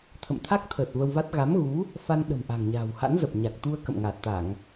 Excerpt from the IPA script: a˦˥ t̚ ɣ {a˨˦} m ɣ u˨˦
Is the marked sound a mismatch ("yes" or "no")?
no